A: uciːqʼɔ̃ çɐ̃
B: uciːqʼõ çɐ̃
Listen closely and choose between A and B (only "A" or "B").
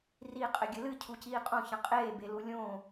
B